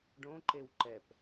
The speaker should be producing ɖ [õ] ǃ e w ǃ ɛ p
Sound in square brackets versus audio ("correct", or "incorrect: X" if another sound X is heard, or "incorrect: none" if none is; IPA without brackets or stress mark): correct